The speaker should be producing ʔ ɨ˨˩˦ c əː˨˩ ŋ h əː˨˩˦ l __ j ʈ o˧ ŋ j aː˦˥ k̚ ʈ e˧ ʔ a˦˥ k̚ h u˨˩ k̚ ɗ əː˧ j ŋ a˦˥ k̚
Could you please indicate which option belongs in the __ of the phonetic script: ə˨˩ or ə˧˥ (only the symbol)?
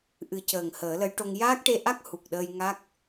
ə˧˥